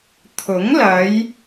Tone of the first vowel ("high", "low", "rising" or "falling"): rising